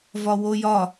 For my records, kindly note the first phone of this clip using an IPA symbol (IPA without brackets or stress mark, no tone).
v